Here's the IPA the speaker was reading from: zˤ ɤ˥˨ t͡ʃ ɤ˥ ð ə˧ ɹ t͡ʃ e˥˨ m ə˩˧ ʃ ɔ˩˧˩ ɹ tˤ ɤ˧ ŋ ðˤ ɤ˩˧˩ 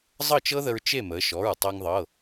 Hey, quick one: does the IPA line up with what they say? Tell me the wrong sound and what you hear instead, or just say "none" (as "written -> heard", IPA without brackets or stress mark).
none